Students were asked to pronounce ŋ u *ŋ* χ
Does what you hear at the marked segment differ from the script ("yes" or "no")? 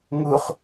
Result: yes